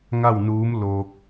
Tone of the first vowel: falling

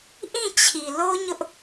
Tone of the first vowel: falling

